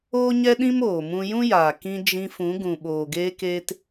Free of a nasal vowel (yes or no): no